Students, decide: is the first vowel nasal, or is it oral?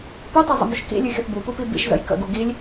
oral